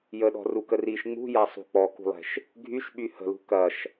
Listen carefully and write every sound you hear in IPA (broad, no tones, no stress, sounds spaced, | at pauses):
j ə ɗ ɔ̤ r u k ə r i ʃ ŋ͡m ṳ j a sˤ ṳ k͡p ɔ k ṳ lˠ ɛ̤ ʃ | ɡʱ y ʃ ɓ y h ə̤ l ṳ k ɐ ʃ